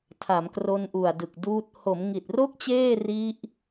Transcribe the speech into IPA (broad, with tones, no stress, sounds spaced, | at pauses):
tʰ a˩˦ m k r o˧ n ʔ u˨˩ a̯ d ɯ˨˩ k̚ d uː˦˥ t̚ h o˩˦ m ŋ i˨˩ t̚ r o˥˩ k̚ t͡ɕ eː˥˩ r i˦˥ ʔ